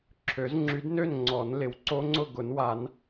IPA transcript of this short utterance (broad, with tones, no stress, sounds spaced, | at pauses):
ǁʰ ø˨˩˦ z ŋ͡ǁ y˨˦ d n ø˥˨ n ŋ͡ǀ ɔ˨˩˦ n l ɪ˨ w ǀ o˦˥ ŋ͡ǀ ʊ˥˨ ɡ ʊ˨˩˦ n w a˨˩˦ n